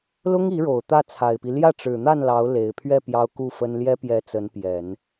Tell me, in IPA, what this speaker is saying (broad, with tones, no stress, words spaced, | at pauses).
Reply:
lʊ˥ŋi˧˥ɻo˨˩ʊ̯ t̪ä˥˩t͡sʰa˨˩ɪ̯pi˦ ljä˥˩ʈ͡ʂɻ̩˨˩n̪a˥˩n lɑ˧˥ʊ̯le˨˩ɪ̯pʰɥɛ˥˩ pjɑ˥ʊ̯ku˥˩fə˥n ljɛ˥pjɛ˧˥ t͡sə˧˥npjɛ˨˩˦n